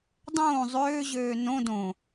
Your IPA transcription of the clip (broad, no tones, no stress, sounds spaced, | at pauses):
dˤ õː zˤ øː ʑ øː n õ d õ